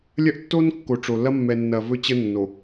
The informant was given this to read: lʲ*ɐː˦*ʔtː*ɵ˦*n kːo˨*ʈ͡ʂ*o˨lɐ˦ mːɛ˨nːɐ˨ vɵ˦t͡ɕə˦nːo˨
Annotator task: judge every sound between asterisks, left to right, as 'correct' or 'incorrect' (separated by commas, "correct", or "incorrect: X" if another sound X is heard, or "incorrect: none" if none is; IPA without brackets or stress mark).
incorrect: ɐ˦, incorrect: o˦, correct